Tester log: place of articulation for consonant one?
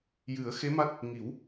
palatal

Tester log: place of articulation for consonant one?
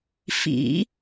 labial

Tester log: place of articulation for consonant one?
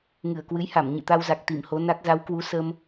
velar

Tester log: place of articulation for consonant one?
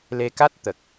alveolar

